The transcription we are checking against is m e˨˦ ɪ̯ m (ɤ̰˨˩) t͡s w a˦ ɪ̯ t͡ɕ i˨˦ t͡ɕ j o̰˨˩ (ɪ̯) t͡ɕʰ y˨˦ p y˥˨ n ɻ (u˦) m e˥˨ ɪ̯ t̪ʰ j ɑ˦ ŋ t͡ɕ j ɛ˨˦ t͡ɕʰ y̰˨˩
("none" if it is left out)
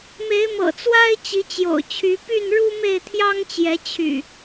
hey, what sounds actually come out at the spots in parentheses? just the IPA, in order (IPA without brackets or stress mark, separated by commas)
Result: ɤ̰˨˩, ʊ̯, u˦